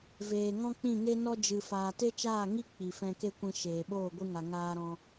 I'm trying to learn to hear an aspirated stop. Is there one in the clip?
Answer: no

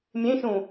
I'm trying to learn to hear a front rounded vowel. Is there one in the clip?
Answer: no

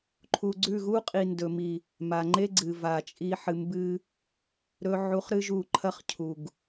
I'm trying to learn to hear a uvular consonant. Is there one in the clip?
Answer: yes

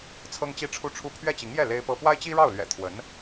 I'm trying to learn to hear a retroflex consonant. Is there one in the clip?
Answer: yes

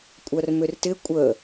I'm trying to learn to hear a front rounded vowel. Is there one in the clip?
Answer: yes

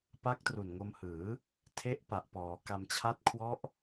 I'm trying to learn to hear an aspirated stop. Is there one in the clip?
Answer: yes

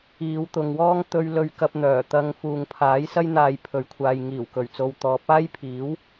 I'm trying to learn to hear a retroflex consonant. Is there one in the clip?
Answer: no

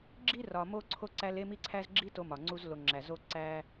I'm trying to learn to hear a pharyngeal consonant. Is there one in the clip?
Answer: no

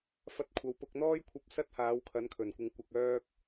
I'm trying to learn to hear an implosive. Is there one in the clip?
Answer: no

